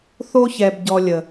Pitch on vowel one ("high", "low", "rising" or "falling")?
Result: high